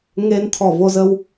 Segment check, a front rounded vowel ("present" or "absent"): absent